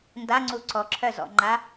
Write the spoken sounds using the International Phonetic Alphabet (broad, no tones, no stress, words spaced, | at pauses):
ndaŋ͡ǀu ǀɔǁʰœzɔ̰ŋ͡ǃa